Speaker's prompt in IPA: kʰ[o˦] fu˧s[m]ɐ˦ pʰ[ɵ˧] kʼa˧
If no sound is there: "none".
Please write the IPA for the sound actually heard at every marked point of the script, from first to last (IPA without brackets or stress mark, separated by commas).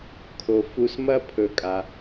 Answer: o˧, m, ɵ˧